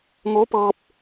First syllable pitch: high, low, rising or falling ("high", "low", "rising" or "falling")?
rising